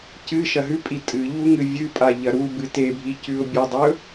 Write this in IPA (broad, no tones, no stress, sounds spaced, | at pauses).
c ɨ ʃ ɐ ɦ ʉ pʼ i tʼ ɨ ʎ u ŋ ɨ vʲ ɨ pʼ a ʎ ɐ ɾ u b ɨ t e bʱ i c ʉ ʊ̯ bʲ ɵ dˤ ɵ